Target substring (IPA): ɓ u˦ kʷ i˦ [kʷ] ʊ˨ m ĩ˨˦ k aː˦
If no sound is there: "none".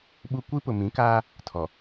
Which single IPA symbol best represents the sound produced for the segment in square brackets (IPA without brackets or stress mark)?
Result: p